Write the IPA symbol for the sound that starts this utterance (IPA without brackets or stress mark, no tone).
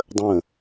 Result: dˤ